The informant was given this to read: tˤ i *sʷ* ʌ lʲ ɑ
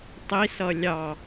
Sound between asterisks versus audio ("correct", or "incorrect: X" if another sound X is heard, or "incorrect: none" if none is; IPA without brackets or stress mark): incorrect: s